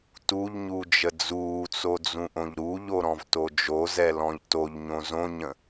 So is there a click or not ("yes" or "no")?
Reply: no